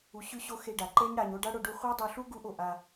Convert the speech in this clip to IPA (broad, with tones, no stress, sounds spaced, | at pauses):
u˧ ɕ ʉ˦ ɕ o˦ x e˧ ɖ a˨ ǃ e˦ ɲ ɽ a˧ ɲ o˦ ɖ a˦ ɽ o˧ ɖ u˧ χʷ a˦ dˤ o˧ ɬ u˦ ɡ u˧ ʔ o˨ ʔ a˧